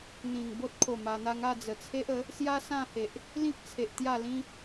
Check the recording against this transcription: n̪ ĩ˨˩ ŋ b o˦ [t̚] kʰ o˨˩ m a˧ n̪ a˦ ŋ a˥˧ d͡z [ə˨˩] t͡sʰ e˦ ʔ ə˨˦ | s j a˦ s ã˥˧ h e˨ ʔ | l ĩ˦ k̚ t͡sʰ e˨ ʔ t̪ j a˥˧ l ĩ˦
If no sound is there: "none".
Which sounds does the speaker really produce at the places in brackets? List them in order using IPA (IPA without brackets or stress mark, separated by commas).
t̚, ə˨˩